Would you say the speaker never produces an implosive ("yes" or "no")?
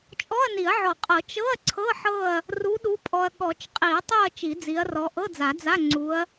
no